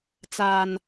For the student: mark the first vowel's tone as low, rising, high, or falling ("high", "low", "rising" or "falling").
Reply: low